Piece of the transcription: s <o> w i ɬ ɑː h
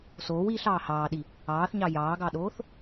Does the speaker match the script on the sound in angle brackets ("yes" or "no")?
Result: no